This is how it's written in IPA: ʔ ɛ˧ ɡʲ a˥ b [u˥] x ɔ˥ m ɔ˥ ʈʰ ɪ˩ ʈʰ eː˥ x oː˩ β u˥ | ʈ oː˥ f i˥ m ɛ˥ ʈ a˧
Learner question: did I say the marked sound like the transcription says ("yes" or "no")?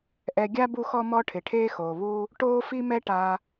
yes